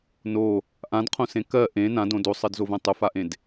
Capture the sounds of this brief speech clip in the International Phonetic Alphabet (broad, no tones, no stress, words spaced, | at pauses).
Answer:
no | ʔãdqʰõsẽ kɜ ʔẽ nãdõ dosˤɜdzovɛ̃ tˤʊfaʔẽd